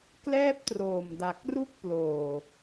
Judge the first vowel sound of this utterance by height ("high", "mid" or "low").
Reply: mid